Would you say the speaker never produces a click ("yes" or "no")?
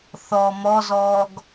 yes